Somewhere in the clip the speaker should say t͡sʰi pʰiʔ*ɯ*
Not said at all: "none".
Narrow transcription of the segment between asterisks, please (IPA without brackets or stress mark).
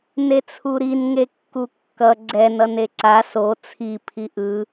ɯ